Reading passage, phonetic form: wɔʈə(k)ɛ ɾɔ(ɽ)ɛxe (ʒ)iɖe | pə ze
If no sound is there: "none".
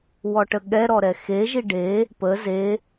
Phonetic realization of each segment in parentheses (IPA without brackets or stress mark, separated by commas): ɠ, ɾ, ʒ